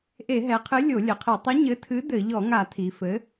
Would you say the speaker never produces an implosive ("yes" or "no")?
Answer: yes